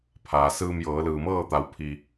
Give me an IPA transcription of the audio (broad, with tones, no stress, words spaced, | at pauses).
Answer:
pʰaː˩sɯː˧mjɤː˩˧ lɯː˩mɤː˥˨t̪a˩˧wpʰi˩